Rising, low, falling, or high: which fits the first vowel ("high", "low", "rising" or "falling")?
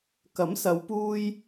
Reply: rising